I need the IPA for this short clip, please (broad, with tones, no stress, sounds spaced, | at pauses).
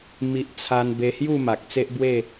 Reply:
m i˨ ʔ t͡sʰ a˧ n b e˧ h j u˥˧ m a˨ k̚ t͡s e˦ ʔ b w e˥˧